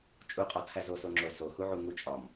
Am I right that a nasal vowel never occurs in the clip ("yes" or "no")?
yes